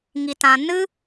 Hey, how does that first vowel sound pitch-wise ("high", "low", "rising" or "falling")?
low